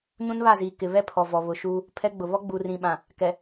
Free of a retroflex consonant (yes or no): yes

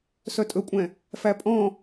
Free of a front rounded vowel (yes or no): no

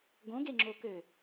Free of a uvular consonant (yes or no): yes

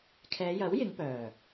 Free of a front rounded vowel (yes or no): no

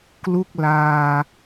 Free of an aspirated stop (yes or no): yes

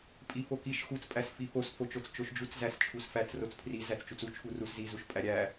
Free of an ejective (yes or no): no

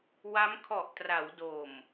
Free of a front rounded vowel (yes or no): yes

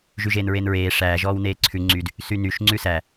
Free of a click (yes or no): no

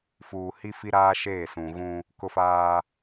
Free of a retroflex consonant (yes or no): yes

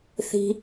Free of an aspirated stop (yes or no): yes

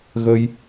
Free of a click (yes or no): yes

